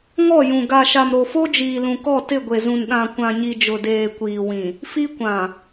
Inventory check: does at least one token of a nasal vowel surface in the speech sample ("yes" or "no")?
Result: yes